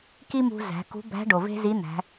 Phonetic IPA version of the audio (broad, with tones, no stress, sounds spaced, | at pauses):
k i˥ m ṳ˧ z æ̤˩˧ k ṳ˧˥ b æ̤˧˥ ɖ o˩ v e̤˥ z i˧˥ n̪ æ̤˩˧